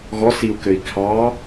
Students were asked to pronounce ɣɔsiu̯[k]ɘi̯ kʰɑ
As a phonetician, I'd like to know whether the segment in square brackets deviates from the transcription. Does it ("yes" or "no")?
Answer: no